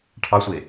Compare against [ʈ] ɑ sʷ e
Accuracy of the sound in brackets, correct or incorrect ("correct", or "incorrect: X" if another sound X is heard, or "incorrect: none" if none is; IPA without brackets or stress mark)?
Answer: incorrect: ʈʰ